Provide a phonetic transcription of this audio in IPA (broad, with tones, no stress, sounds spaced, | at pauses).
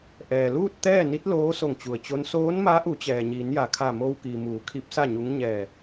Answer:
ʔ ɛː˩ l uː˥˨ t̚ t̪ ɛː˥˨ n i˧˥ t̚ l oː˧˥ s o˧˩ ŋ t͡ɕ u˩ ə̯ t͡ɕ o˧˥ n s oː˧˥ n m a˧˥ ʔ u˩˧ t͡ɕ ɛː˩ ɲ iː˩˧ n j a˩ kʰ a˧˩ m oː˧ w k iː˩ m uː˩˧ kʰ i˧˥ p̚ s a˥˨ ɲ u˧˥ ŋ ɲ ɛː˧˩